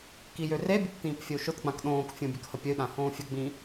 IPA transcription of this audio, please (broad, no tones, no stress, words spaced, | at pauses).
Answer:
kijørebʲəp tĩːpfʲəu̯ʃʊtɡ͡bãk ɗõːkfʲõ bʲəkhəpʲəy̯ɗã hõːfʲəɡ͡bĩ